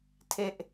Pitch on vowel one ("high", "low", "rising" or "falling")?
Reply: falling